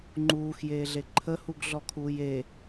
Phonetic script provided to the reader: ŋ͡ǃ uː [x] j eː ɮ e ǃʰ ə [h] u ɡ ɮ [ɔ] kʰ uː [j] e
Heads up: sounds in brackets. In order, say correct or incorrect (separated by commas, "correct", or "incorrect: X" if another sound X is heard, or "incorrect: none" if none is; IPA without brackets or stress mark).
correct, correct, correct, correct